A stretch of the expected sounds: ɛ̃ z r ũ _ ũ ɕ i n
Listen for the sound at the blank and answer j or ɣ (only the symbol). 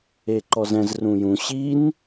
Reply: j